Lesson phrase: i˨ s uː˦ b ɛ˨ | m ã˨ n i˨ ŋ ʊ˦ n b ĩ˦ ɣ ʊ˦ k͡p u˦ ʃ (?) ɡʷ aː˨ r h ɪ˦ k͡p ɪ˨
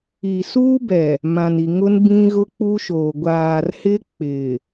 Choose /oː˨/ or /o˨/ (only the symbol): oː˨